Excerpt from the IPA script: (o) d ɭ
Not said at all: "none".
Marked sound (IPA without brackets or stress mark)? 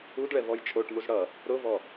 u